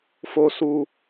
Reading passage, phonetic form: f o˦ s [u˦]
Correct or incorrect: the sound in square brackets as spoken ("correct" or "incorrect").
correct